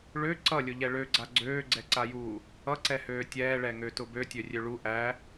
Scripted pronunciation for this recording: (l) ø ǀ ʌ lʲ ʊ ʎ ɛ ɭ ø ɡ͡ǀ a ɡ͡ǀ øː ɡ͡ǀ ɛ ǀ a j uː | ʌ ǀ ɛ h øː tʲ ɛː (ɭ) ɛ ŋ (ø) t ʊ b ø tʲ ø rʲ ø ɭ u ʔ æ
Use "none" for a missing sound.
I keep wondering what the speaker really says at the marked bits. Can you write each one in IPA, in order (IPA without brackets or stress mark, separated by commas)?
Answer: ɭ, ɭ, ø